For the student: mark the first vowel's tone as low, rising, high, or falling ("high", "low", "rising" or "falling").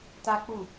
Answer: high